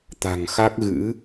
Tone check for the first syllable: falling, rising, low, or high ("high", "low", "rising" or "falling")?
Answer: low